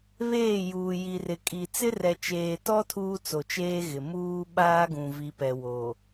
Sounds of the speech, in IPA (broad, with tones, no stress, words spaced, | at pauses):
βeː˦˨juː˨ ji˨rɪ˨kʼi˨ t͡sɪ˦rɛ˨t͡ʃeː˨tɔ˦ tʰuː˦t͡so˨t͡ʃeː˦ɣɪ˨ muː˦ɓaː˦ɡũ˨ vi˨pɛ˨wo˨